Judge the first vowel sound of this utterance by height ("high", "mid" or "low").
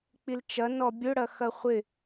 high